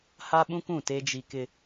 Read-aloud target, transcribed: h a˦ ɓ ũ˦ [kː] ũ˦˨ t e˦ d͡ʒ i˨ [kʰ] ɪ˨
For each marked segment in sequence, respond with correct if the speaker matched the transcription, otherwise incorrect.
incorrect: k, incorrect: k

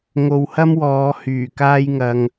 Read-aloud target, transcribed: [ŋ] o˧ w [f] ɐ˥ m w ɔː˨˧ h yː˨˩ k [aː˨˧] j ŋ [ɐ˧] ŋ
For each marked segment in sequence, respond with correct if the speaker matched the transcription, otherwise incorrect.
correct, incorrect: h, incorrect: aː˥, correct

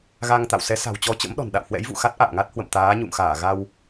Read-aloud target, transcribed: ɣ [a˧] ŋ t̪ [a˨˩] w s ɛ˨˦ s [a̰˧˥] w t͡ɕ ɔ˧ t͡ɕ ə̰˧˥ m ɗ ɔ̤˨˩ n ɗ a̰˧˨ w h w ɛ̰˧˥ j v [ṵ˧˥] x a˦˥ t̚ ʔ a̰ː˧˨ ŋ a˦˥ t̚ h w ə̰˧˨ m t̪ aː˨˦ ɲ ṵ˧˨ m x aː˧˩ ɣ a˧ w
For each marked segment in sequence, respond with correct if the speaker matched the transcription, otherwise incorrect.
correct, incorrect: a̰˧˨, incorrect: a̤˨˩, incorrect: ṵ˧˨

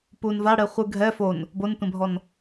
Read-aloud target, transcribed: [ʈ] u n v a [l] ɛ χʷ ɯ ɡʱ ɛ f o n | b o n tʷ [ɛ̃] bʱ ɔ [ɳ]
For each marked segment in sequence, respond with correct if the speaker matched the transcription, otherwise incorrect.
incorrect: p, incorrect: ɽ, correct, incorrect: n

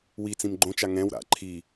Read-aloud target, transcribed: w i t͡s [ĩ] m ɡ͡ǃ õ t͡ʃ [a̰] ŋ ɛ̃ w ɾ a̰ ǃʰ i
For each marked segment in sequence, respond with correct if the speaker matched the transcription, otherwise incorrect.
correct, incorrect: a

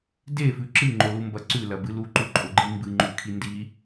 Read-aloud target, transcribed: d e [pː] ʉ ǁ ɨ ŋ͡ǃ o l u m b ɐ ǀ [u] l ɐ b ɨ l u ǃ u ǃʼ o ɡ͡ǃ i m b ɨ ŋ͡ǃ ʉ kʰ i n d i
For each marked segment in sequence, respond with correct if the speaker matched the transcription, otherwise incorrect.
incorrect: f, incorrect: ʉ

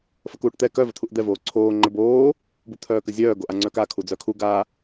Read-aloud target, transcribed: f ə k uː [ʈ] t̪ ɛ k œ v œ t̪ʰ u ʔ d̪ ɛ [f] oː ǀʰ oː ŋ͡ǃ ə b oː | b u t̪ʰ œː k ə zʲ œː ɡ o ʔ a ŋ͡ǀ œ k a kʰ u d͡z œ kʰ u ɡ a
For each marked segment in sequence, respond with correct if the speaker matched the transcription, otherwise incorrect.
correct, incorrect: v

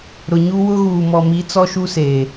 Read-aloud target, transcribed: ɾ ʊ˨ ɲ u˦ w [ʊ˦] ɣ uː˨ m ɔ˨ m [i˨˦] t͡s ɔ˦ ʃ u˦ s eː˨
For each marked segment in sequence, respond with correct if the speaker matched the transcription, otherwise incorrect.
correct, correct

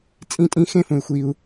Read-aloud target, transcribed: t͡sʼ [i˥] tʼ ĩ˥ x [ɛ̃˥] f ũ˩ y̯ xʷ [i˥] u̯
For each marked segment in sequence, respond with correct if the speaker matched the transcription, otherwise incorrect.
incorrect: ĩ˥, incorrect: ẽ˥, incorrect: i˩

